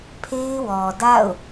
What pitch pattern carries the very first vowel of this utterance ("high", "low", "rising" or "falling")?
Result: high